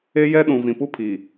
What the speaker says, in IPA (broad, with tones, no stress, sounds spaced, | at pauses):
e˦ j ɛ˦ ɗ ũ˨ v ĩ˨ p u˦ pʰ i˨